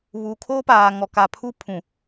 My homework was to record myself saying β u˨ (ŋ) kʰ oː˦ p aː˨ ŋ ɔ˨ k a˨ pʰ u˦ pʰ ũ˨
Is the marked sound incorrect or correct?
incorrect